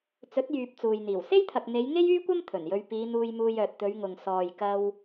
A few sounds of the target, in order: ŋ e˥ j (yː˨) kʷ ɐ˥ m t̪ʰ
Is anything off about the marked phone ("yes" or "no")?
yes